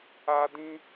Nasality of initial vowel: oral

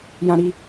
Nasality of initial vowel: nasal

